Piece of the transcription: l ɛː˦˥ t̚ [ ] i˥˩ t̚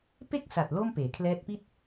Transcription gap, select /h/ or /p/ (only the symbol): p